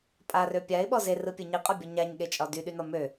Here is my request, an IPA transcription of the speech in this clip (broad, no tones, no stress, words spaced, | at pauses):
pʼarø pʲaɪ̯ɓɔ zerɯpʲɯ ɲiqʼɒbʲɔ ɲaɲɠet͡ʃʼɒ dyɗynɒ mø